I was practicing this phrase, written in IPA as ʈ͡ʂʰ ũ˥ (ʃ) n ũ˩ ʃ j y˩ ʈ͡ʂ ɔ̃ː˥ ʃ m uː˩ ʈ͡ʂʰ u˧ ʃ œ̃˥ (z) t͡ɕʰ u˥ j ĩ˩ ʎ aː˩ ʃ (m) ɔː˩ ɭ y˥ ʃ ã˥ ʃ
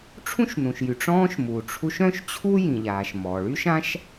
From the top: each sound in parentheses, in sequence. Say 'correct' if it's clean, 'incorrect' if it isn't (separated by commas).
correct, incorrect, correct